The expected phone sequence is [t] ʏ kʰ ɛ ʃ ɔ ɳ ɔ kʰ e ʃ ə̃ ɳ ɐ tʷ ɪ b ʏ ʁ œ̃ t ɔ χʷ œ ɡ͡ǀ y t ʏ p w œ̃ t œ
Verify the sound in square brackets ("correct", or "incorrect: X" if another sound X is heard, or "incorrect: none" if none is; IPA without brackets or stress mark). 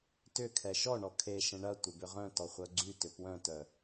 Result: correct